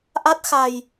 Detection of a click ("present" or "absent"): absent